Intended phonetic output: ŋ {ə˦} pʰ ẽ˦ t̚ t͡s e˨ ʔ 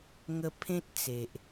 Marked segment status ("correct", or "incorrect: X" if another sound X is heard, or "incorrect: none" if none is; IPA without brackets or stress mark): correct